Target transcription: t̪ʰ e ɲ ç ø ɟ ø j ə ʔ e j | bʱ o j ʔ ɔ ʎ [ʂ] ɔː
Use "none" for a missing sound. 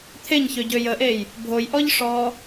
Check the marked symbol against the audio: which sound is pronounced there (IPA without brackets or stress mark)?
ʂ